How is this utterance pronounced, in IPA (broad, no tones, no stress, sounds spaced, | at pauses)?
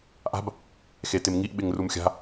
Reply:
ʔ a̤ b | x e t ɪ m ŋ i ʔ ɓ ɪ ŋ r u m xʲ a̤